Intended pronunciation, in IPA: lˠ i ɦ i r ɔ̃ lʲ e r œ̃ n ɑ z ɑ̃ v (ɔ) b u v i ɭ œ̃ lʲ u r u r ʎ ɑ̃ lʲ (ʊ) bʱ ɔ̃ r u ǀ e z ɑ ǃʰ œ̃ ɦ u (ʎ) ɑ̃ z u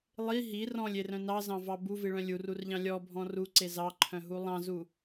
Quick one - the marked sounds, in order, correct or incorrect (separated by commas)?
incorrect, incorrect, incorrect